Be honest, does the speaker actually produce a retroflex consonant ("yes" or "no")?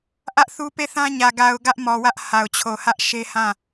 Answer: no